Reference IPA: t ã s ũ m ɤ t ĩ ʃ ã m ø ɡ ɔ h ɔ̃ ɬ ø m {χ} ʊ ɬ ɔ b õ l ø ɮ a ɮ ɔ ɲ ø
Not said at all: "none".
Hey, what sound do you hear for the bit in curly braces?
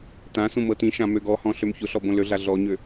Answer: ç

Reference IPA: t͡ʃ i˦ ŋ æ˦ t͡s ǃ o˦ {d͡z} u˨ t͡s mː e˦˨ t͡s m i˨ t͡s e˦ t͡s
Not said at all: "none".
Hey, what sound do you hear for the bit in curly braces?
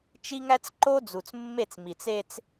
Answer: d͡z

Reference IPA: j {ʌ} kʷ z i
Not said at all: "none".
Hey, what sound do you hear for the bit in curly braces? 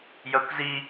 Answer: ʌ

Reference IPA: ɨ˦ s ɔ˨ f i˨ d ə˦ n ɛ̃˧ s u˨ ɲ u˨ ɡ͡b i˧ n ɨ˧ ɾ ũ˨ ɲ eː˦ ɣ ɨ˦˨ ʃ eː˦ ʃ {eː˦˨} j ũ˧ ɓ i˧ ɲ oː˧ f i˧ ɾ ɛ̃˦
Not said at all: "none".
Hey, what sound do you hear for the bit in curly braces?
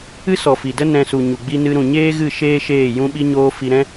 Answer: eː˦˨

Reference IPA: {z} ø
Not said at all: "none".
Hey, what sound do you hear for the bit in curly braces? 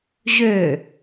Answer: ʑ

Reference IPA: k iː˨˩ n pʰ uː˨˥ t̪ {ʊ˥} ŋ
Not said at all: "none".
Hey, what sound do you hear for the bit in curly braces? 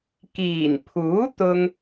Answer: ʊ˥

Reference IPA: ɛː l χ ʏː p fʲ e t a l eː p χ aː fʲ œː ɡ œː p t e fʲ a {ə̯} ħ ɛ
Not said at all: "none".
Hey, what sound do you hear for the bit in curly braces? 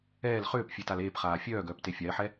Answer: ɪ̯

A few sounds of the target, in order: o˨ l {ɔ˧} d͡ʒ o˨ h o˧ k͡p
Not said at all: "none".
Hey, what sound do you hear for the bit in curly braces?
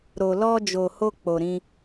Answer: ɔ˧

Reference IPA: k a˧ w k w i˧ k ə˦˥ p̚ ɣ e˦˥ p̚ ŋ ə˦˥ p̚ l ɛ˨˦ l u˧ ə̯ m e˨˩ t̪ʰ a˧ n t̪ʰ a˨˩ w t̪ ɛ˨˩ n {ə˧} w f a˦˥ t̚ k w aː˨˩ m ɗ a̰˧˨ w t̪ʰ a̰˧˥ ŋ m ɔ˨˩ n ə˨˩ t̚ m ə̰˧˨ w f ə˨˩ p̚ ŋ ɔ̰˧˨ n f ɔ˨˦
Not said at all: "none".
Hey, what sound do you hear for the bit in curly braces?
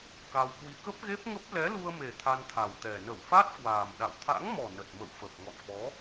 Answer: ə˧˩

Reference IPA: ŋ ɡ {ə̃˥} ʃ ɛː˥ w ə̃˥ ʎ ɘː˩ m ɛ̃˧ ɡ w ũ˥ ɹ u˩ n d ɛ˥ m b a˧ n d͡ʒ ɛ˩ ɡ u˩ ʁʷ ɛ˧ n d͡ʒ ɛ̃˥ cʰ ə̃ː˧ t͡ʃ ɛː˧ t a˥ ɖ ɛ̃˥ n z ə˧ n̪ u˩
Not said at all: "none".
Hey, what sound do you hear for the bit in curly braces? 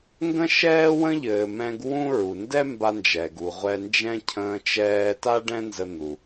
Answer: ə̃˥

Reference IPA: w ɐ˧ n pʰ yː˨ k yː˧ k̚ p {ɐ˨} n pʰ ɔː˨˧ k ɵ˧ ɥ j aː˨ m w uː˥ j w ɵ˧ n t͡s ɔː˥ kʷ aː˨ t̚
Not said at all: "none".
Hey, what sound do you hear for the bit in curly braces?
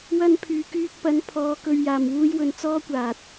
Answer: ɐ˨˧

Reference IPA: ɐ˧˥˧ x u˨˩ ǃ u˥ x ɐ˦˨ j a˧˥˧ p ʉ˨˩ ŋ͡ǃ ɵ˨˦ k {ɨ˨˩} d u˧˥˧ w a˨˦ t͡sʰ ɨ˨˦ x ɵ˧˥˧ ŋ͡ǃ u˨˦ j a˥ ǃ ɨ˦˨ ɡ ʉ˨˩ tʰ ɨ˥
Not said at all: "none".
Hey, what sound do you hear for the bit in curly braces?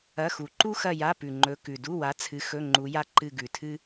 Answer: ʉ˨˩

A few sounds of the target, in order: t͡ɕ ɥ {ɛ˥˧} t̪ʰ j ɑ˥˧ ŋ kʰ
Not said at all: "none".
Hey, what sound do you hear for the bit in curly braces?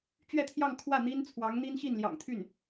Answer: ɛ˥˧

